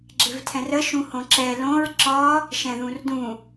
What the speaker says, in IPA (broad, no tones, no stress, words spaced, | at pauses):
ɡ͡ǁɪvtʰɛ̃rə ʃũhõǁɛ lõɹ ǁɒ | ʃɛ̃ðũrdũ